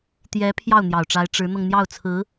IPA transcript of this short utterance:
t̪ j ɛ˧˥ pʰ j ɑ˥˩ ʊ̯ n̪ j ɑ˨˩ ʊ̯ ʈ͡ʂ a˧˥ ɪ̯ ʈ͡ʂ ɻ̩˧˥ n̪ ɤ˧ ŋ n̪ j ɑ˥˩ ʊ̯ t͡sʰ ɹ̩˧˥

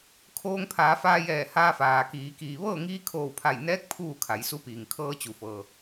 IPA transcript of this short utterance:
kʰ oː˧ ŋ pʰ aː˩˧ f aː˧ j ɛː˧˩ h aː˧ f aː˩ k iː˩˧ k iː˩ ʋ ɤː˥˨ ŋ iː˧˥ kʰ oː˧˩ w pʰ a˧˩ j n ɛː˧˥ k̚ pʰ uː˥˨ kʰ a˩˧ j s u˧˥ p iː˩ ŋ kʰ ɤː˧ t͡ɕ u˩ f ɤː˩

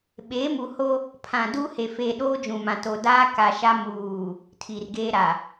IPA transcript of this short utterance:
ɓ eː˨˦ m u˨ h o˦ | pʰ ã˨ d u˦ h e˨ f eː˨ ɗ oː˦ d͡ʒ ũ˨ m ã˨ t o˨ d aː˦ k a˨ ʃ a˦ m uː˨ | tʰ i˨ r ɡ eː˦ ɾ a˨

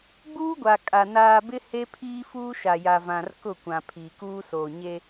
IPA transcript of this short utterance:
ɡ͡b uː˦ ɡʷ a˨ kʼ a˨ n aː˨ b ɪ˦ h e˦ pʰ iː˦ f uː˦ ʃ a˨ j a˨ v ã˨ r k ʊ˦˨ kʷ ã˨ pʰ iː˨ k uː˦ s oː˨ ɲ e˦

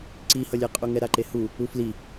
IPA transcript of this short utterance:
ǀ i h ʌ lʲ ɛ qʼ u ŋ ɛ ɾ a ǃ e h u | u f l i

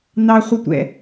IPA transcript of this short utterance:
n ɑ χʷ ʌ tʷ ɛ̰

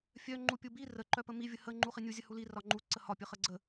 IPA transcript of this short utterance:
fʲ œ ŋ͡ǃ u pʲ u b i r ə ǃ œ p ə m i vʲ ə h ə ŋ͡ǃ u χ i nʲ u zʲ ə h u l i r ɒ ŋ͡ǃ u ǀ ə h ɒ pʲ ə χ ə ɡ͡ǀ ə

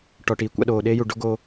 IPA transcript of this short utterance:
ʈ ɔ˨ ʈ iː˨ kʷ a̰˧ ɗ oː˨ ɗ eː˦ j u˨ ɖ o˦ ɡ oː˧

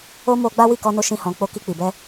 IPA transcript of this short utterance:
o˦ m o˧ ɡ͡b a˦ w i˦˨ k ɔ˧ n o˧ ʃ ĩ˦ h ɔ̃˧ k͡p o˦ k i˧ k͡p i˨ b ɛ˧

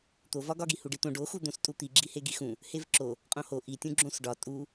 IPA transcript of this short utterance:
t̪ o v ɒ ɡ ɒ ɡ i h u ɖ i t̪ õ ɖ o x u d̪ õ s tʼ u t̪ i ɡ͡ǁ i h e ɡ i x ũ | h e v ǁ o | qʼ õ h o ʔ i tʲ ũ ɡ͡ǁ õ s ɖ ɒ tʼ u

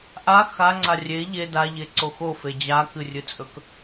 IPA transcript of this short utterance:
ʔ a x a ŋ͡ǀ a rʲ e ʎ e d a ʎ e ǀ o x o f e d͡ʑ a k ɨ rʲ ɨ t͡sʼ ɵ k

